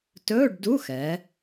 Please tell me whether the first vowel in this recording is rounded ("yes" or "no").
yes